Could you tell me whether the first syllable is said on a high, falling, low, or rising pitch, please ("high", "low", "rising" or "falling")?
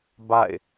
falling